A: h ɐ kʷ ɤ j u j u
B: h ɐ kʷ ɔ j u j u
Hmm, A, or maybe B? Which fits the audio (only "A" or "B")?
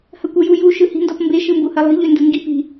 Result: A